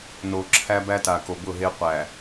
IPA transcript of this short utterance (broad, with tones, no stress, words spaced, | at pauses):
no˨ǁʰæ˦ bæ˦ta˨ ko˨bʊ˦˨ɦe˦ qʷæ˨